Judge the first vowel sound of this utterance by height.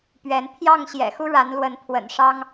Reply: mid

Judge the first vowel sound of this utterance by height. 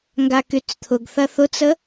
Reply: low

